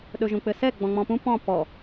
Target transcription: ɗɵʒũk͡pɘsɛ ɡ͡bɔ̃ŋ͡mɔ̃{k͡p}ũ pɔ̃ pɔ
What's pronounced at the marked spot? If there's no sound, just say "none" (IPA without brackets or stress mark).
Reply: p